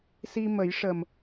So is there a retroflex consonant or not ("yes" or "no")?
yes